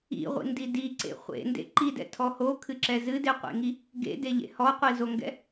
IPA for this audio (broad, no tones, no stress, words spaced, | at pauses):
ḭʁʷḭndi diǀḛ χʷḛndḛ ǃidɛ̰tʰɔ hokʰɨǁɛ zɨdeqʷḛŋi | ɡḛdeʎḛ hɔqʷizoŋɡɛ̰